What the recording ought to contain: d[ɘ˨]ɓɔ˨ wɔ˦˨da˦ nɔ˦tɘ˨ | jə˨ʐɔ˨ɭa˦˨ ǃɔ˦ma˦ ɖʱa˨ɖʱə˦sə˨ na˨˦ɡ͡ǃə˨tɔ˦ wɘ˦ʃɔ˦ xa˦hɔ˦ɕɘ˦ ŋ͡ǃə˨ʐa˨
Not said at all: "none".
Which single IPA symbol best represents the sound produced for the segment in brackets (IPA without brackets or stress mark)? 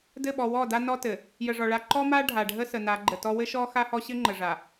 ɘ˦˨